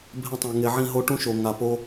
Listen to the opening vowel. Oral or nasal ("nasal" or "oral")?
nasal